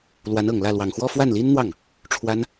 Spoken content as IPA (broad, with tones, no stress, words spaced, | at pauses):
lwa˧˥nɤ˨˩ŋlä˥˩ lwɑ˨˩ŋxwɔ˥˧ fwa˥˩nli˥nn̪wɑ˥˩ŋ | ʈ͡ʂʰwa˥n